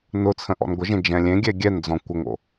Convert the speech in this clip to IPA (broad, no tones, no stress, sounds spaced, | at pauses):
n ʊ t͡sʰ ə̃ ʔ ɔ̰ n ɡʷ ə ʒ ẽ d͡ʒ ɛ̃ lʲ ẽ ɡʲ ɛ ɡʲ ɛ n d͡z ɔ̃ kʷ ə ŋ o̰